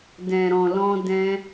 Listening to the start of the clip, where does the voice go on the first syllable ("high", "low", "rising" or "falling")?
low